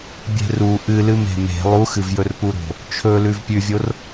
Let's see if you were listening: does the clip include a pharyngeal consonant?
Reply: no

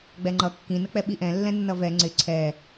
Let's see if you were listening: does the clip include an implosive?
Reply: yes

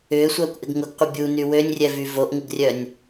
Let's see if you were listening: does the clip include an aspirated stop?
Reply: no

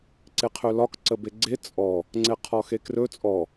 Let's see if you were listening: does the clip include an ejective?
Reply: yes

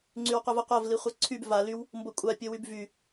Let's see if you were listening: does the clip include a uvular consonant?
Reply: yes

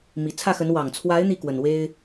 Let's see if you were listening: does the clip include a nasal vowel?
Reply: no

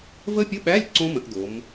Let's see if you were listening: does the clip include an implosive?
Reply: yes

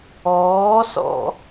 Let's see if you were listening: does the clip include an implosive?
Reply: no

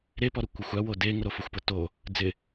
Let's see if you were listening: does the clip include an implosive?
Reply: no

